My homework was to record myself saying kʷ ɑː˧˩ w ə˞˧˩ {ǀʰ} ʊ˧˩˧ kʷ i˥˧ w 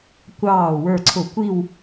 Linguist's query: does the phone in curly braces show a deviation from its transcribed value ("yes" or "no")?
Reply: no